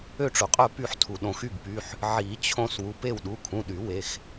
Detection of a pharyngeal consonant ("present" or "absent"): present